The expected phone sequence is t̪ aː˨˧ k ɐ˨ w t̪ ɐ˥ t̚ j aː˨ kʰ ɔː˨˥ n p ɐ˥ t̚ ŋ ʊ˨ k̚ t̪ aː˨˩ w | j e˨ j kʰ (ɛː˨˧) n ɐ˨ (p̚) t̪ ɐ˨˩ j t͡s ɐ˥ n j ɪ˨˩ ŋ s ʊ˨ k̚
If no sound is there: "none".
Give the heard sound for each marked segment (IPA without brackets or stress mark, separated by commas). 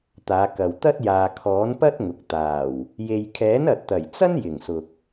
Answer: ɛː˨˥, t̚